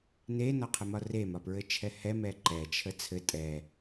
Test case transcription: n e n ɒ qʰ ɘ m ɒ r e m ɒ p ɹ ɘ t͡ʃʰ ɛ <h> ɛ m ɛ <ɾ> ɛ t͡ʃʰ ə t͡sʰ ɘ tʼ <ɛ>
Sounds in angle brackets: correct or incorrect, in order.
correct, incorrect: ǃ, correct

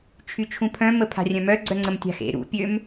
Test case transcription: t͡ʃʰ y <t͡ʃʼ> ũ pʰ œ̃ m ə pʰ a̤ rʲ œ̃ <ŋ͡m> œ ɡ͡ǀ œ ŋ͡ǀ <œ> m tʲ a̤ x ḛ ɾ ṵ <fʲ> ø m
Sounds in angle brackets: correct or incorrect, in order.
incorrect: t͡ʃʰ, incorrect: m, incorrect: ə, incorrect: pʲ

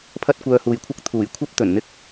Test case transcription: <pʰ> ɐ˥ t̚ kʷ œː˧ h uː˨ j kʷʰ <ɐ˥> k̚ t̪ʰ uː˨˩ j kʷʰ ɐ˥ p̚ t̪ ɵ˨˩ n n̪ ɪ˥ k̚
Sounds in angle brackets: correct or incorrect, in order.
correct, correct

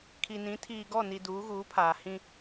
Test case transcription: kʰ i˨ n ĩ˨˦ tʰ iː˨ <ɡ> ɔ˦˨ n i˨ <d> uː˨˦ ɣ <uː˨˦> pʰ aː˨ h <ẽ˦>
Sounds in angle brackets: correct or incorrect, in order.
correct, correct, correct, incorrect: ĩ˦

